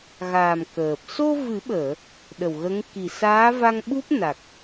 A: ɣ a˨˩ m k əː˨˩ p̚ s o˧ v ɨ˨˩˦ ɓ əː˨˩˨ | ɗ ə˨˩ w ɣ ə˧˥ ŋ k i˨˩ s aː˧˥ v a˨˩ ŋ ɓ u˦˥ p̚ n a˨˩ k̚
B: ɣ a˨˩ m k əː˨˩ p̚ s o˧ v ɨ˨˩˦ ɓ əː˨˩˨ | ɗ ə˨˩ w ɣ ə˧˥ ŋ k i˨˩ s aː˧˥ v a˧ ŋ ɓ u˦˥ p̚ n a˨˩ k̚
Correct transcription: B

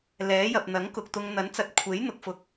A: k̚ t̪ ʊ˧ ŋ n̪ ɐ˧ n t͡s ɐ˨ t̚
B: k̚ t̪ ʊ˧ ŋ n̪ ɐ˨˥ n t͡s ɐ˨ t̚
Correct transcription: B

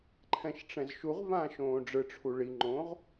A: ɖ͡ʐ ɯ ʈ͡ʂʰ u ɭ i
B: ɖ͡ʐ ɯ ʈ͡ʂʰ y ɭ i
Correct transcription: A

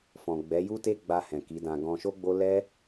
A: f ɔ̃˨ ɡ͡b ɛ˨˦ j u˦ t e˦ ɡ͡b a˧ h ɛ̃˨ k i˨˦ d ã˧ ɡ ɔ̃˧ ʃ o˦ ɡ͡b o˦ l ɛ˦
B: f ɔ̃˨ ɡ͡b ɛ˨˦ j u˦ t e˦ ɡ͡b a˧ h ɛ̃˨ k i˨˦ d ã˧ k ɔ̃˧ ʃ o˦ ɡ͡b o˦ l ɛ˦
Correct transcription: A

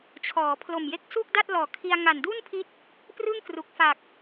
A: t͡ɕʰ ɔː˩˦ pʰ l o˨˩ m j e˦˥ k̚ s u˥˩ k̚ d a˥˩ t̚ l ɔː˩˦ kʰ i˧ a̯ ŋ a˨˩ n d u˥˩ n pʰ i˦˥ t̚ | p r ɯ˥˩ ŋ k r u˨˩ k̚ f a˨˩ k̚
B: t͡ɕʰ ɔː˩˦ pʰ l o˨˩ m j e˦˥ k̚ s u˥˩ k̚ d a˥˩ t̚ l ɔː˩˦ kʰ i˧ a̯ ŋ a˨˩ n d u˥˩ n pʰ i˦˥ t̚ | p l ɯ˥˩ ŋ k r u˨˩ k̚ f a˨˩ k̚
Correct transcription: A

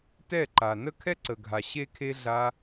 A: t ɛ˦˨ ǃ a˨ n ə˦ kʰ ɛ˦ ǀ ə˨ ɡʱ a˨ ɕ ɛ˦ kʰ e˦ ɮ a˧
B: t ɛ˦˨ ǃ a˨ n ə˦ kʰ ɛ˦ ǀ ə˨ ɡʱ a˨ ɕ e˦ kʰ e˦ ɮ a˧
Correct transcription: B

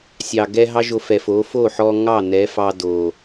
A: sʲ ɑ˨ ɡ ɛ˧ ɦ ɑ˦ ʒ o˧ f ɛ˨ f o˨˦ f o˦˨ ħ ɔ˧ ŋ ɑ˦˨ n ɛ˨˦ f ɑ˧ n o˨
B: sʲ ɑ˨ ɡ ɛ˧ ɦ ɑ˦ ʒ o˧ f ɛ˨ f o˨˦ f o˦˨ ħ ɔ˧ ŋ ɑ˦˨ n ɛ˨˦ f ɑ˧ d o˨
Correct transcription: B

